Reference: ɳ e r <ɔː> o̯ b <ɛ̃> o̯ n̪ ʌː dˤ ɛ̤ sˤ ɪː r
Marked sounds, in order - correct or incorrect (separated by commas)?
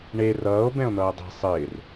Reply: incorrect, correct